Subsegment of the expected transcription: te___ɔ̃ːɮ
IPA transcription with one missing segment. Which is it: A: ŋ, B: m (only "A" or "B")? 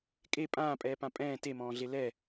B